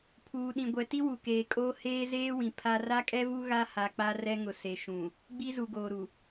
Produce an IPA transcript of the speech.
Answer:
pʰ uː˨ ɗ ĩ˨ ɡʷ ɛ˨ t i˦ w u˨ k eː˨ kʼ oː˦ h eː˦ z eː˦ w ĩ˨ pʰ a˦ r a˦ kʼ ɛ˦ v u˦ ɣ a˦ h a˨ k͡p a˦ r ɛ˦ ŋ ʊ˨ s e˨ ʃ ũ˨ | ɡ͡b i˦ z u˨ ɡ oː˨ ɾ u˨

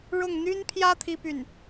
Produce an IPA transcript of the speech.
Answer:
ɻ ʊ˥˩ ŋ n̪ y˥ n pʰ j ä˥ t̪ʰ i˥ p y˥˩ n

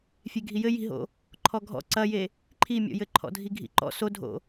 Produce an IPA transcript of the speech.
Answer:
fʲ e ɡʱ i j ɘ j i̤ ɦ o̰ | ǃʰ ɔ ɡʱ ɔ̰ ǀ ɐ j e | ǃʰ i mʲ ɔ̰ j ɘ ǃʰ ɔ̰ dʱ i ɡʱ ḭ ǃ ɔ̰ s o dʱ o̰

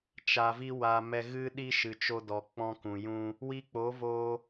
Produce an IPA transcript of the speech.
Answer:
t͡ʃ a˨ v i˧ w a˨ m ɛ˧ ɣ ɨ˦ ɗ i˦ ʃ ɨ˨ t͡ʃ o˧ d ɔ˨ k͡p ɔ̃˧ k ũ˨ j ũ˧ | w i˧ k͡p o˨˦ v o˧

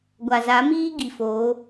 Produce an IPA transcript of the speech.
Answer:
ɡʷ a˨ z a˨˦ m iː˦ ɡ i˨ f oː˨˦

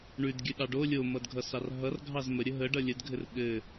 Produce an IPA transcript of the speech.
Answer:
ɳ ʉ d ɡʲ ʉ ɗ ɑ ɖ o lʲ o m ʌ d ɡʱ ʌ s ɑ r ɦ ʌ r ɡʱ ɑ z m ə ɾʲ ə ɦ ə ɖ ʌ lʲ ə d ɡʱ ɘ r ɠ ɘ

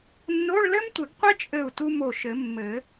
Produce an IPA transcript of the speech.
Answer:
nː o˧˥˧ ɭ l ɘ˥ m tʷ ɘ˨˩˦ ɡ qʷ ɛ˥ t͡ʃʼ ɘ˧˩ u̯ t u˧ m o˧˩ ʃ ɘ˨˩˦ mː ɘ˨˩˦

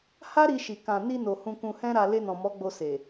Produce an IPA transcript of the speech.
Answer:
h a˦ ɾ i˧ ʃ i˨ k ã˨ n i˧ n o˨ h ũ˧ k ũ˧ h ɛ̃˦ ɾ a˧ l e˧ n ɔ̃˨ m ɔ˨˦ ɡ͡b o˧ s e˨

